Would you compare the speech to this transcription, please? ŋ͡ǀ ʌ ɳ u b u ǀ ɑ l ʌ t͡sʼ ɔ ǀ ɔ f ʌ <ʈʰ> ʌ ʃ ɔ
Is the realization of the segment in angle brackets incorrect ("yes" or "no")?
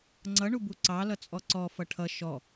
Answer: no